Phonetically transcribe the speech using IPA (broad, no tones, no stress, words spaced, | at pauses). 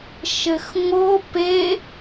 ʃɘxŋo pe